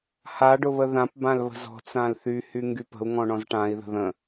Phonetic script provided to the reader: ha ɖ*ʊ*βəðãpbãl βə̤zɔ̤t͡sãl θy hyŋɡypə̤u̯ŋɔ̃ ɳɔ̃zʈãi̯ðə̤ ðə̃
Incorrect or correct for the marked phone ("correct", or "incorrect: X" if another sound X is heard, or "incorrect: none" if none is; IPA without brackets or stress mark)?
correct